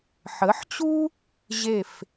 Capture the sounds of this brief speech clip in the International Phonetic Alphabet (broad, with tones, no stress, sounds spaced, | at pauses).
ħ ə˩˥ ħ t͡ɕ u˥ | ʑ e˥˩ f